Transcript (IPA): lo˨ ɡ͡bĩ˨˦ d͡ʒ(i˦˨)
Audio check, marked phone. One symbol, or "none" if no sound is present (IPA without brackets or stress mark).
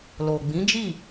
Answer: i˦˨